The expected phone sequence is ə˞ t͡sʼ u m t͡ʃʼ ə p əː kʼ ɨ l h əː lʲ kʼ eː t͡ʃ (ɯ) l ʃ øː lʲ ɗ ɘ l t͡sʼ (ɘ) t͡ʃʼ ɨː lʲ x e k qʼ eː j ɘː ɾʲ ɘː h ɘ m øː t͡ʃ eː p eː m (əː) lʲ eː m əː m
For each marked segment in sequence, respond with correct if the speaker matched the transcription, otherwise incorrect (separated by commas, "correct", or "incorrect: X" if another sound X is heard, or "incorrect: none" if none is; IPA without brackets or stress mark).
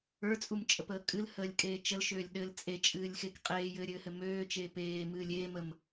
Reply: incorrect: ə, incorrect: e, incorrect: ɨː